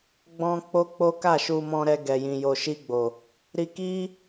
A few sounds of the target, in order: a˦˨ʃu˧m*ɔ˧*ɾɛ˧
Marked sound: incorrect: ɔ̃˧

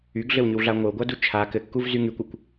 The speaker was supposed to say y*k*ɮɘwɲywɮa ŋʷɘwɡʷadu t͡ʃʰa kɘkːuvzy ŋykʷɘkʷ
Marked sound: incorrect: ɡ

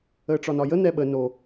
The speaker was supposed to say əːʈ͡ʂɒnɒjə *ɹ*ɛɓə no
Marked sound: incorrect: n̪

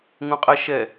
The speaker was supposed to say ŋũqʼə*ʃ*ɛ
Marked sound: correct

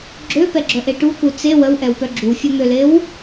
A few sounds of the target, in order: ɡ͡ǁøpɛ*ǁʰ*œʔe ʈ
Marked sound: incorrect: ɡ͡ǁ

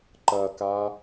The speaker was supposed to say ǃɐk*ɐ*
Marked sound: incorrect: a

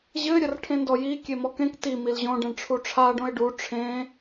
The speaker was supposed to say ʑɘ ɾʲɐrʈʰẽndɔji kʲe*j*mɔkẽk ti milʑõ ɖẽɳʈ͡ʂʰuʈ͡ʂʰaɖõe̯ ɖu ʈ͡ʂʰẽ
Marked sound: incorrect: none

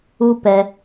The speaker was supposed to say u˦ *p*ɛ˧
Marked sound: correct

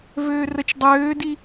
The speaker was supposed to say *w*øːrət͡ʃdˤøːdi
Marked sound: incorrect: v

